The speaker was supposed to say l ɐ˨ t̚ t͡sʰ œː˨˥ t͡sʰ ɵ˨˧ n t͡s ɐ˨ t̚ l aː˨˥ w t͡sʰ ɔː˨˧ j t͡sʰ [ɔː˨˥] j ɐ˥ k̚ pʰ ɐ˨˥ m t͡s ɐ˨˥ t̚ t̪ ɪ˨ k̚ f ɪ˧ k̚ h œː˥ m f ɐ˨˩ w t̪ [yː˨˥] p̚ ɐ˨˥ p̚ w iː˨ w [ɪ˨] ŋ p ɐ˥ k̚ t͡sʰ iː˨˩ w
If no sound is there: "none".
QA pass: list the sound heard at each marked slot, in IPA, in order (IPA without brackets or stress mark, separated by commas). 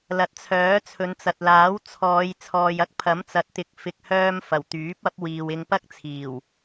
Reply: ɔː˨, yː˨˥, ɪ˧